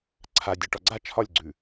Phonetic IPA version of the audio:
ǀʰ a dʲ ə˞ ʈ ɒ ɡ͡ǀ a t͡ʃʰ ɒ lʲ ɡ͡ǀ ʉ

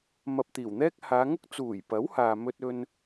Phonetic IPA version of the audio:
m ɐ˧ p̚ t̪ iː˨˩ w n̪ ɛː˥ k̚ h aː˨˧ ŋ ʊ˥ k̚ t͡s uː˨˩ j p ɐ˨˥ w h aː˧ m ɵ˥ t̚ ɵ˥ n

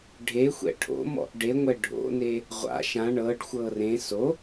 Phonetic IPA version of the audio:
ɖʱ e xʷ ɛ̰ ʈʰ o̰ m ɔ̰ ʔ ɖ e ŋʷ ɛ ɖʱ o̰ n e | ʁʷ a̰ ʃ ã ɳ ɤ ɖ xʷ ɤ r ẽ s o

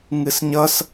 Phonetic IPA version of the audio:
ŋ ɨ s ɲ ʌ s

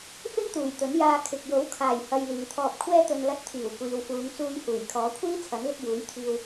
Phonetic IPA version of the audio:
f ɪ˥ ŋ t̪ uː˨˩ j t̪ ɵ˨˥ n j aː˧ kʰ ɪ˨ k̚ j o˨˥ w kʰ aː˨˩ j h ɐ˧ j l iː˨ t̪ʰ ɔː˧ p̚ kʷʰ ɛː˥ t̪ ɵ˧ n l ɐ˧ t̚ t̪ʰ iː˨˩ w kʷ iː˨ w f uː˨˧ ŋ t͡s uː˧ j h uː˨˩ j kʰ ɔː˨˥ kʷʰ iː˥ t͡sʰ ɐ˨˥ n l ɪ˧ k̚ j uː˨˥ j t̪ʰ iː˧ w

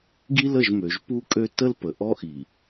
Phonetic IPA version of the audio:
ɡ i˦ l ə˦˨ ʒ m ø˨ ʒ p u˦ kʼ ø˦ t ə˦ l p ə˨ ʔ ɔ˦ ʔ i˨

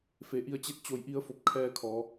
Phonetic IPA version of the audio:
f e˩˧ ʔ i˧ ə̯ t͡ɕ e˥˨ t̚ t͡ɕ o˧˩ j ʔ i˧ ə̯ f o˧˩ p̚ kʰ ɛː˧ kʰ ɔː˩˧

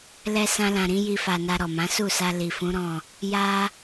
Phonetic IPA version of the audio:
l ɛ˧ s ã˧ l ã˨ ɾ ĩ˨˦ j i˧ f a˨ n a˧ ɾ ɔ˨ m ã˨˦ s u˦˨ s a˧ l i˨ f ũ˨˦ ɾ ɔ̃˦˨ | j a˧

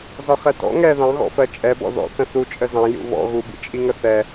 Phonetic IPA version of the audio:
z ɒ χ ɛ t ɔ̰ ŋ ɛ ð ɑ̃ ɣ ɔ̰ f ɜ t͡ʃʼ ɛ b ɔ̰ ð ɔ̰ θ ə̃ θ u t͡ʃʼ ə z ɑ̃ j ṵ β ɔ̰ ɣ u b ḭ t͡ʃʼ i ŋ ə θ ɛ

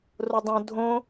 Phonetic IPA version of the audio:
r o dˤ õ dʱ õ

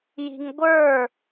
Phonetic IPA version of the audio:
j i̤ ŋ ɡʷ ə˞

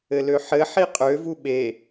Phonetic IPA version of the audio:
ɘ l ø ħ ɘ ħ i qʼ ø v u ɓ e

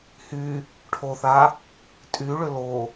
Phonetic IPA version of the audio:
h y | ʈʰ o θ a | tʼ y ɭ ʏ l o

